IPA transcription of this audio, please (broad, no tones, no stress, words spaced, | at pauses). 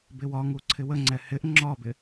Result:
bɪwɒŋu ǀʰɪwəŋ͡ǀɛ hɪʔ ŋ͡ǁɒbɪ